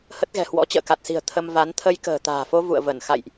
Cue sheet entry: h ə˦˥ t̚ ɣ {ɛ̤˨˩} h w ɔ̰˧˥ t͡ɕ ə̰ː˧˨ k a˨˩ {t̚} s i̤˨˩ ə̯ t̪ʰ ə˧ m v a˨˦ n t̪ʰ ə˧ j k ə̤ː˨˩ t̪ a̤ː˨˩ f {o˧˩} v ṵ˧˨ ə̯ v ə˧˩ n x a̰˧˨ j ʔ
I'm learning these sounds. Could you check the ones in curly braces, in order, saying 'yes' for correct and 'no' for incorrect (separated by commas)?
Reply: yes, yes, no